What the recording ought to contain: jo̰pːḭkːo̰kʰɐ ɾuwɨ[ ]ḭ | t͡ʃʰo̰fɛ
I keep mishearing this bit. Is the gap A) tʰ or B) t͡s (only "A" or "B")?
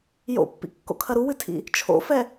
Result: A